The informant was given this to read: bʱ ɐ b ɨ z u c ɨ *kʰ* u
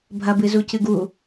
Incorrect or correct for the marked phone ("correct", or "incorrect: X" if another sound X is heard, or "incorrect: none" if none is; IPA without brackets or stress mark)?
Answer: incorrect: ɡ